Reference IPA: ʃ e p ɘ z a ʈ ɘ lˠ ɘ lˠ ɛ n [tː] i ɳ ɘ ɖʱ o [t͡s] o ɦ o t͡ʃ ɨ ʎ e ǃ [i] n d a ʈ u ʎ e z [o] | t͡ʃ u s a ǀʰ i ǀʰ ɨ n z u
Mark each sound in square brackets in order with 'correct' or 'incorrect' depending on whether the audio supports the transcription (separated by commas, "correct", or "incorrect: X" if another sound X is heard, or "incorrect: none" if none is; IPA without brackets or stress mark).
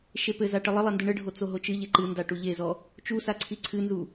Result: incorrect: d, correct, incorrect: ɨ, incorrect: ɔ